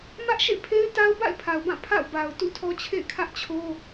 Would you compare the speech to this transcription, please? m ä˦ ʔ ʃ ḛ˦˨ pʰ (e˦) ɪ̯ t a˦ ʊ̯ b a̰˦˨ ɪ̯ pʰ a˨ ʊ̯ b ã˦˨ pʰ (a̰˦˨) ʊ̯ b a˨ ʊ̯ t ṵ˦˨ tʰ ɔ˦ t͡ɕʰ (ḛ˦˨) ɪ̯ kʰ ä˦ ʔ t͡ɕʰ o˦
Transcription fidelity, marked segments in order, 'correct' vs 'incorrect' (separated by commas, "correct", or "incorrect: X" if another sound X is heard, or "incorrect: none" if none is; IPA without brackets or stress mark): correct, correct, correct